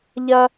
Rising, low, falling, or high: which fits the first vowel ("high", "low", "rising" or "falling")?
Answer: high